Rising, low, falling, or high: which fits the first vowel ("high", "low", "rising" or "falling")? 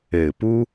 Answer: low